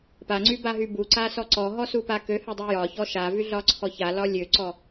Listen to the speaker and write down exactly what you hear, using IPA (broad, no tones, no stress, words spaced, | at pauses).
paŋ͡ǀybaɦy buǀasɔ ǀɔɦɔsupa køhødˤy jɒçɔ ʃavyɮɒǀʰɔ çalɒ lʲøǀɔ